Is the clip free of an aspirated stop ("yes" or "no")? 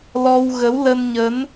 yes